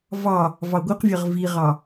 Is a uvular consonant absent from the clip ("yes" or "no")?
no